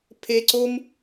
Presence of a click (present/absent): present